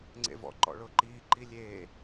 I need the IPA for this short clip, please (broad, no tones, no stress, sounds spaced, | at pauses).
ŋ͡ǀ ḛ v ɔ̰ ǃ ɔ̰ ɭ ʊː ǃ iː ǃ i lʲ eː